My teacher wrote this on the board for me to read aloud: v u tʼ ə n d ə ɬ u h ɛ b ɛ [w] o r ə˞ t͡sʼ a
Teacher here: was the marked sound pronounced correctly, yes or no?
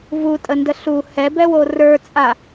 yes